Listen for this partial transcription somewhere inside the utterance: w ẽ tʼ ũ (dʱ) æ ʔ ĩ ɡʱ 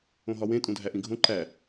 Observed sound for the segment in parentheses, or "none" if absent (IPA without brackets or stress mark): dʱ